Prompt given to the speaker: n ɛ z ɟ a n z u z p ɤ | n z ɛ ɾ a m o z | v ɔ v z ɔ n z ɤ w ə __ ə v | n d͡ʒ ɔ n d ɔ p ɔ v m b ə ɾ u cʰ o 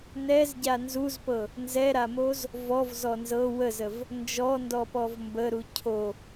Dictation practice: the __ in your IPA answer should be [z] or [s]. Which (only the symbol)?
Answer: z